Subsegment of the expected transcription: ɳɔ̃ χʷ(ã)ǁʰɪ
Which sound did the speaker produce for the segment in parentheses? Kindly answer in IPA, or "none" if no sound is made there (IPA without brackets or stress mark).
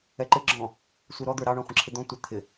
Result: ə̃